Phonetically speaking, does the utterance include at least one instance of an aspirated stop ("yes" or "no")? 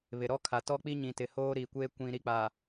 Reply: yes